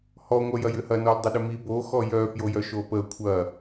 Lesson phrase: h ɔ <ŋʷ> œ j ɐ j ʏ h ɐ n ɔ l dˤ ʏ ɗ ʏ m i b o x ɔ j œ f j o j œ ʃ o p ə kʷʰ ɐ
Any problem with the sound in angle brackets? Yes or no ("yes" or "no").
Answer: no